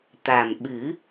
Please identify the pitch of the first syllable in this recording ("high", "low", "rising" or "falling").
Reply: low